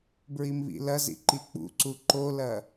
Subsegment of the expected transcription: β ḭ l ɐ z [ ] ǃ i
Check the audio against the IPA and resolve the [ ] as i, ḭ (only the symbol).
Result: ḭ